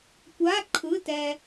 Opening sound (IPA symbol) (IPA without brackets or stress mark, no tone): kʷ